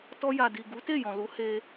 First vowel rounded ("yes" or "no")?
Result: yes